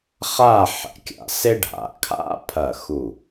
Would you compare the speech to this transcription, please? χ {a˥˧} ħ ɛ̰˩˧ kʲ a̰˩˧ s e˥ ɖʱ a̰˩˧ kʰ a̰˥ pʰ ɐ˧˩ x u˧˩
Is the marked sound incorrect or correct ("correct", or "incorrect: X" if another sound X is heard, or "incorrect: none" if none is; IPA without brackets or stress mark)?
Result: correct